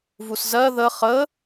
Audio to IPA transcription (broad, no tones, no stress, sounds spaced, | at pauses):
v u s z ɜ ð ə χ ə